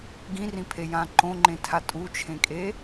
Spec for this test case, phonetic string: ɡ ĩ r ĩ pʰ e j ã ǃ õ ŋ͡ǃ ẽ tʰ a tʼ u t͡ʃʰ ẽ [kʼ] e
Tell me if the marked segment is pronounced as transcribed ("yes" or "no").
yes